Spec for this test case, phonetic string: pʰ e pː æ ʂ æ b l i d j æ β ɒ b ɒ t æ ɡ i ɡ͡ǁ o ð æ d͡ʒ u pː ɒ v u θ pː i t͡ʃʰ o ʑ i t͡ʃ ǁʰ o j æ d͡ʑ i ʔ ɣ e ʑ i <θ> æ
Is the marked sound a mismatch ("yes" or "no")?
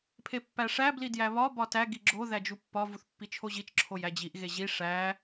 yes